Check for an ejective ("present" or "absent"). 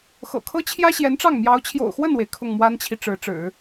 absent